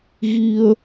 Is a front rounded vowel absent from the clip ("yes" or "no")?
yes